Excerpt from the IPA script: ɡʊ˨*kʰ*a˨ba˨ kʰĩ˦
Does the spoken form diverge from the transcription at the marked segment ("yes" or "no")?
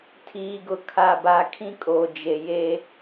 no